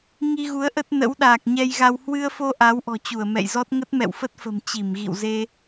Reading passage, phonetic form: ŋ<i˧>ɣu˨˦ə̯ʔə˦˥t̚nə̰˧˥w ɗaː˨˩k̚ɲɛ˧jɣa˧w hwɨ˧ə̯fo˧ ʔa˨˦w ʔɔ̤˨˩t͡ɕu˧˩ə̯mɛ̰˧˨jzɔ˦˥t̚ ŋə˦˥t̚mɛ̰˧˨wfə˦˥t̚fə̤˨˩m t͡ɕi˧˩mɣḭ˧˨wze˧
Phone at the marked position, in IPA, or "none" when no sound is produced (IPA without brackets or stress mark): i˧